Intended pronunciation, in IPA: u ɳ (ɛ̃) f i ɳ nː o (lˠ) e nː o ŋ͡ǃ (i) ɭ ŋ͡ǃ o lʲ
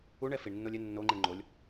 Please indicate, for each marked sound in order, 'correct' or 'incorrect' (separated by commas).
incorrect, incorrect, correct